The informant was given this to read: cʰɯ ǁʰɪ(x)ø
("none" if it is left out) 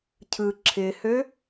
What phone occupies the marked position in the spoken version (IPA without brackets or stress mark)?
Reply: h